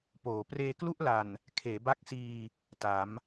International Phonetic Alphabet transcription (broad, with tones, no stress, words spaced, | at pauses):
poː˩˦ preː˧klu˥˩ʔla˨˩n | kʰeː˩˦ ba˦˥k̚siː˧ | ta˩˦m